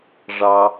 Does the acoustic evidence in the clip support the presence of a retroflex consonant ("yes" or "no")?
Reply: yes